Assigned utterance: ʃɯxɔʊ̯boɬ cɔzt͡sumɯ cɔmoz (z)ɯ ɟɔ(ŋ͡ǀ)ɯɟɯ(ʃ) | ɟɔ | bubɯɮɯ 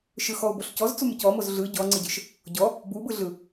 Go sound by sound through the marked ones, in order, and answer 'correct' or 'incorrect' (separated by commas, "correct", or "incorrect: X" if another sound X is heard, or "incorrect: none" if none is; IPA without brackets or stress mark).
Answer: incorrect: ɮ, correct, correct